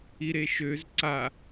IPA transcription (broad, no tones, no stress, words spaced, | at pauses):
iɾeʃøz ǀa